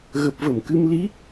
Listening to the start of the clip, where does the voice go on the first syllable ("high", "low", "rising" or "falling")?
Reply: low